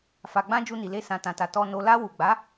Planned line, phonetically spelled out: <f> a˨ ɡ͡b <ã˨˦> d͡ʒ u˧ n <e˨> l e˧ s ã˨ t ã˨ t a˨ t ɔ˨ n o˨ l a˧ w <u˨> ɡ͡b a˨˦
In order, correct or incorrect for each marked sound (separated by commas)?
correct, incorrect, incorrect, correct